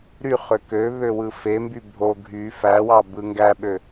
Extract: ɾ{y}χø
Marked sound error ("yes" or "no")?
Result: no